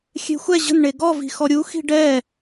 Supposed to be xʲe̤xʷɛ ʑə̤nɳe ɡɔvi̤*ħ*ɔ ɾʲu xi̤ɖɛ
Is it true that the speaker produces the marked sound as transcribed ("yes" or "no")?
no